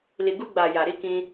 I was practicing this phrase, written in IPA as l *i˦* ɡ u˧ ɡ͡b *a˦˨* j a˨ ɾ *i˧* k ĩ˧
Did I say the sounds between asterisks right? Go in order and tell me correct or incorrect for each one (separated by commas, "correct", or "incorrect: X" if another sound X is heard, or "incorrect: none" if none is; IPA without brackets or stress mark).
incorrect: i˨, incorrect: a˨, correct